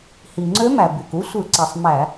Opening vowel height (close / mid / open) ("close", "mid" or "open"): close